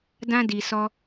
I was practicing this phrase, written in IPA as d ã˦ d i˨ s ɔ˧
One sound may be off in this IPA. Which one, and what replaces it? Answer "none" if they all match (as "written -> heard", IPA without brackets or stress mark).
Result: none